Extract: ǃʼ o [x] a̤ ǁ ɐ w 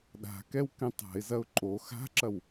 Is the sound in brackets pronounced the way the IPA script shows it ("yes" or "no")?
yes